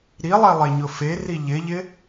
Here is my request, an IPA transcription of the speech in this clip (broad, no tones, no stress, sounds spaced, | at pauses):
ɾ i lˠ e lˠ e ɲ ʊ f e r i ʎ ɪ ʎ ɪ